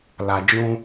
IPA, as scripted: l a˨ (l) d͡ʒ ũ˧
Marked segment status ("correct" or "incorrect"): incorrect